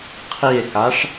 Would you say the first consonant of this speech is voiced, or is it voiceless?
voiceless